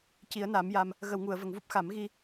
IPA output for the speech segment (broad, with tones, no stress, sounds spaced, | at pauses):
c i˨˩˦ ə̯ n a˨˩˦ m j a˧ m | ɣ ə˨˩˨ w ŋ u˨˩˨ ə̯ v ə˨˩˨ ŋ v u˦˥ p̚ x a˨˩˦ m ɣ i˧